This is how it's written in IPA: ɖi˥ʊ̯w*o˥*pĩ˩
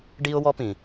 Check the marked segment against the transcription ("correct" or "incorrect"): incorrect